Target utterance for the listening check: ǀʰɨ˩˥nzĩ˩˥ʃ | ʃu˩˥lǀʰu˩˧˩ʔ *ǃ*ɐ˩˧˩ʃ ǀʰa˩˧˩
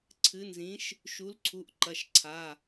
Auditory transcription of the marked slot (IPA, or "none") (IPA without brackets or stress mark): ǃ